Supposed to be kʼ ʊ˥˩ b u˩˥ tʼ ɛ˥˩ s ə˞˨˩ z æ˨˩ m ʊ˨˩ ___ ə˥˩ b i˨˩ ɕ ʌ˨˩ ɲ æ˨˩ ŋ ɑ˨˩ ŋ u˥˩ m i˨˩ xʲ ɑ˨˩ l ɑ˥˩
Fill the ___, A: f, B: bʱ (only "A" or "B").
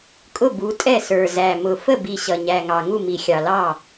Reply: A